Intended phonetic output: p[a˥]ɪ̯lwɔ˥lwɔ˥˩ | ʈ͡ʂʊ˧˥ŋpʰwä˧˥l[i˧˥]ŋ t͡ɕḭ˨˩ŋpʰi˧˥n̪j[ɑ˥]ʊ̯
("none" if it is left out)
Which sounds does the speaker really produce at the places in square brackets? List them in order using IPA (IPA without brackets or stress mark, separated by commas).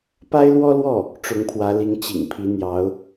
a˥, i˧˥, ɑ˧˥